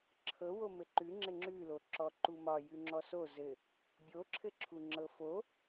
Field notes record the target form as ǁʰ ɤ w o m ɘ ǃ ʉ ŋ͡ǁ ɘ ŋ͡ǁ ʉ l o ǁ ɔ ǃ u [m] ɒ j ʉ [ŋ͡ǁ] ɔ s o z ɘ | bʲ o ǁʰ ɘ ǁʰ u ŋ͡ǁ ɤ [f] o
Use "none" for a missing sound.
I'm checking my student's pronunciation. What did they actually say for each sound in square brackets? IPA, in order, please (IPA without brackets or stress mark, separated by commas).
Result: m, ŋ͡ǁ, f